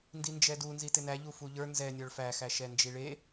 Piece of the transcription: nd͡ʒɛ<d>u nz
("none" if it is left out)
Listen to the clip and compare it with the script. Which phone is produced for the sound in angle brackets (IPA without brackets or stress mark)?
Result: d